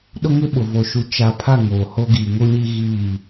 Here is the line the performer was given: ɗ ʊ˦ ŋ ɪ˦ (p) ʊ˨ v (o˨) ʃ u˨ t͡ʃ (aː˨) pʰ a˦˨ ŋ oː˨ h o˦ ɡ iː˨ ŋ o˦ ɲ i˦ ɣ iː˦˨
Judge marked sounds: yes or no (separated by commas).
no, yes, no